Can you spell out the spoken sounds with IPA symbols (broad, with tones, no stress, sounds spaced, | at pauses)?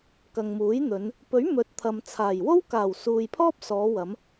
k ɐ˨ ŋ m uː˨˥ j n̪ ɵ˨˧ n | p ɵ˨˥ ɥ m ɵ˨˥ t̚ t̪ʰ ɐ˨ m t͡sʰ aː˨˩ j w o˥ w k aː˨˩ w s uː˨ j pʰ ɔː˥ p̚ s ɔː˨˧ w ɐ˨˧ m